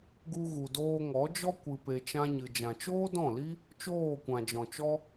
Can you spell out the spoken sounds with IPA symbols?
ɡ u˧ ɣ u˨ d oː˧ ŋ ɔ˨˦ d͡ʒ ɔ˦ kʷ ɨ˧ p e˧ t͡ʃ ã˦ ɲ ɨ˧ d͡ʒ ã˨ t͡ʃ oː˦ d ɔ̃˦˨ l i˦ | t͡ʃ oː˦˨ kʷ ã˨ d͡ʒ ɔ̃˨ t͡ʃ ɔ˦

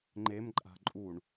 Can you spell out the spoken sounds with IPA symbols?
ŋ͡ǃ e m ǃʼ a̤ ǃʼ u ɳ

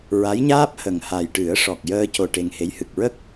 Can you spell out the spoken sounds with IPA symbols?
ɹ a˧˥ j ɲ aː˦˥ p̚ h ə˨˩ ŋ h a˨˩ j ʈ ɨ˨˩˦ ə̯ ʂ ɔ˨˩ k̚ j əː˧ c o˧ ʈ e˧ ŋ h e˧˥ j h ɨ˨˩ k̚ ɹ ə˦˥ k̚

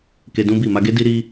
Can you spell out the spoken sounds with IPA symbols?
k e˧ d ũ˦ b i˦˨ m a˧ ɡ e˦ d i˦ ɾ i˦

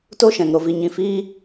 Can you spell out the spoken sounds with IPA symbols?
t o˦ ʃ ɛ̃˨ ŋ ɾ o˨ v i˨ ɲ ĩ˧ f iː˦

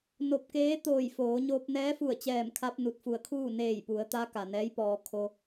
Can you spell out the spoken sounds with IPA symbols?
n o˧ p̚ k eː˧˥ t̪ oː˧˩ j f oː˩˧ ɲ oː˧ p̚ n ɛː˧˥ f u˧˩ ə̯ t͡ɕ ɛː˧˩ m kʰ a˧ p̚ n u˧˩ t̚ f u˧˩ ə̯ kʰ uː˥˨ n eː˧˩ j p u˩˧ ə̯ t̪ a˧˥ k a˩ n ɛː˧˥ j p ɔː˧ kʰ o˧

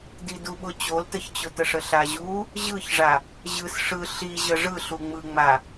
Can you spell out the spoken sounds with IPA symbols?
d i d u ɓ ʊ t͡ɕ o l t ə ç t͡ɕ ʊ t ə ʂ ə ɬ a ʑ u | ʑ ɯ ç ʐ a | ʑ ɯ s ʂ ɯ ɬ i ʑ ə ʐ ɯ ɬ u ŋ͡m ɯ ŋ͡m a

